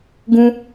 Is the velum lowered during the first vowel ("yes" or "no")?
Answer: yes